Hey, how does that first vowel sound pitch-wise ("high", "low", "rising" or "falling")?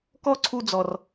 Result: falling